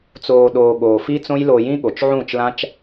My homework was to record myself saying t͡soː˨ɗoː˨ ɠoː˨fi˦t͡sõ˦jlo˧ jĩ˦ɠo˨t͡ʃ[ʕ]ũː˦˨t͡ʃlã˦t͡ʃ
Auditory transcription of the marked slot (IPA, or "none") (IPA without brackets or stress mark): ʕ